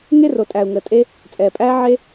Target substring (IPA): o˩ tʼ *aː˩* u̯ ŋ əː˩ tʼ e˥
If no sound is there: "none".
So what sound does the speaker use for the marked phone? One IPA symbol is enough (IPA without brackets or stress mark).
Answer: æː˩